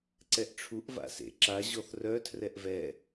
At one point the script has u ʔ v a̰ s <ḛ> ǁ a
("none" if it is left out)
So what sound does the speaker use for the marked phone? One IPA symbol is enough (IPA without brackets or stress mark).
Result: ḛ